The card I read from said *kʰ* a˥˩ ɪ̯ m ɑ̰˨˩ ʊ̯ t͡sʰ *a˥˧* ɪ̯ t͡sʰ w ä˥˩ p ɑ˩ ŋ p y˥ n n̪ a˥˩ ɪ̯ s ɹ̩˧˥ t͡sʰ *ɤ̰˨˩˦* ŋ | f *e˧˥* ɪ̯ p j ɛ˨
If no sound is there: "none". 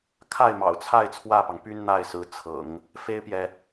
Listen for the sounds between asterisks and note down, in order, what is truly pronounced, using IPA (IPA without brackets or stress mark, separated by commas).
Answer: kʰ, a˥˧, ɤ̰˨˩˦, e˥